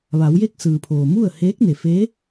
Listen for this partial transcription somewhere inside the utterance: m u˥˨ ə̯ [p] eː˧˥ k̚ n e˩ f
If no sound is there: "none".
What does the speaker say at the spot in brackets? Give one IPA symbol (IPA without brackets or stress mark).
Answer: h